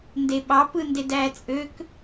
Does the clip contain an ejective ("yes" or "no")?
yes